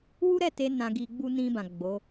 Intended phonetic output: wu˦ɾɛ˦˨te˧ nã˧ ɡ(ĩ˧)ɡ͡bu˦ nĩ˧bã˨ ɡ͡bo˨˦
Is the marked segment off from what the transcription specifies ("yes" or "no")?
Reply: yes